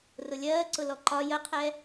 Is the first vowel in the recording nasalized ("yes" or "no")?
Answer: no